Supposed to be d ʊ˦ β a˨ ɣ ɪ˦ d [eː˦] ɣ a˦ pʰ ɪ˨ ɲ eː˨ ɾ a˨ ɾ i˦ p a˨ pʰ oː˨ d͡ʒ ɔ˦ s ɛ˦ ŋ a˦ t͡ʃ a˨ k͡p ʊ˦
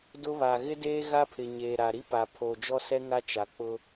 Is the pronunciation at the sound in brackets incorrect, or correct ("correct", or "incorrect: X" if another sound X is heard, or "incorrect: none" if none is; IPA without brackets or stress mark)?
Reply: correct